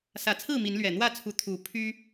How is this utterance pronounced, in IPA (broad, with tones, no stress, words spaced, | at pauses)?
sä˨˩t͡sʰɹ̩˥˨ mi˨˦nlɥɛ˨˩ n̪wä˥˨t͡sʰu˨˦ t̪ʰu˨˦ pʰy˦